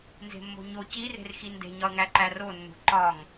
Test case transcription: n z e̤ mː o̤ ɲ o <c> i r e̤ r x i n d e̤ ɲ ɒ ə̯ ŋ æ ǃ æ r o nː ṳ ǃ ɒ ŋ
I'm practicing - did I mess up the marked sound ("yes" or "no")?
no